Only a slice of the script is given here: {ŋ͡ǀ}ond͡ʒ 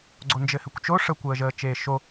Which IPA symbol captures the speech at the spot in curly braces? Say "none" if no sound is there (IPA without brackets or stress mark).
ɡ͡ǀ